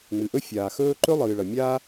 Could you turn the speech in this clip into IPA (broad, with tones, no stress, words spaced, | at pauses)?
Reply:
ŋ͡mɨ˩ʔɵ˥fʲaː˩xɵː˥ ǃɵ˥ lˠɨː˩ɭɐ˩ mʲaː˥